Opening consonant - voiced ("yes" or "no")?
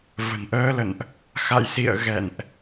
yes